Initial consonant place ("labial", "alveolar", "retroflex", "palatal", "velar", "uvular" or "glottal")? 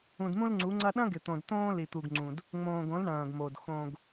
alveolar